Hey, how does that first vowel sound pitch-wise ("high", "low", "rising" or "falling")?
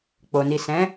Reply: low